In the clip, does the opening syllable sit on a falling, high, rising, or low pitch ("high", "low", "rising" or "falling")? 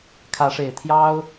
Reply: rising